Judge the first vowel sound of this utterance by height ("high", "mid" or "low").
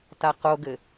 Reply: low